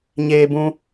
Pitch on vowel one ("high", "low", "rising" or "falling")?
high